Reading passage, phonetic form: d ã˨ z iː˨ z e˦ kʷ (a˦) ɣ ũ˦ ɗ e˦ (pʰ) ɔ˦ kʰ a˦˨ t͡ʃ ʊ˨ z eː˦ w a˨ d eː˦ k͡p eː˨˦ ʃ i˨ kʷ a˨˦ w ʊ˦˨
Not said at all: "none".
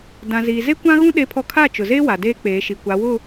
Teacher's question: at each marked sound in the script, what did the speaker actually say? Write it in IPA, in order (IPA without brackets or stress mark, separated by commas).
ã˦, pʰ